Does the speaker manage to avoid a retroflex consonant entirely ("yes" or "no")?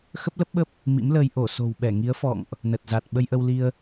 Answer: yes